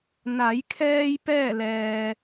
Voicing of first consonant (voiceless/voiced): voiced